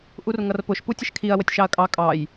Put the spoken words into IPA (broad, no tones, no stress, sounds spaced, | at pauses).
ʔ u r ŋ ʌ r p ʊ ʃ p u tʲ ə ʃ kʰ i ɐ̯ w ə tʲ ʃ ɑ ɐ̯ kʼ ɑ kʼ ɑ j